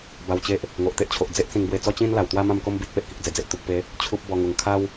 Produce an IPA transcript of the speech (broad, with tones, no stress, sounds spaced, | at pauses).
b a˧ w t͡ɕ e˦ ʔ | ŋ o˨ ʔ t̪ e˦ ʔ t͡ɕʰ o˨ ʔ d͡z e˦ ʔ t͡s ĩ˧ ŋ b w e˧ t͡s ɔ˦ t͡ɕ ĩ˦ n l a˨˩ w t̪ w a˦ m ã˥˧ m k o˦ m b i˦ t̚ p e˨ ʔ k i˨ k̚ d͡z e˨˩ d͡z e˨ ʔ t̪ u˨ k̚ p e˨˦ | t͡ɕʰ u˦ p̚ b ɔ˧ ŋ u˨˩ ŋ kʰ a˦ w